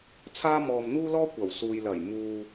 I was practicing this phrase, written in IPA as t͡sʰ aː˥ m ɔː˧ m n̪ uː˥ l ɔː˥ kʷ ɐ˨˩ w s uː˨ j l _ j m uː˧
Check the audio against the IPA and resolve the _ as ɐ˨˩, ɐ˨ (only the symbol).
ɐ˨˩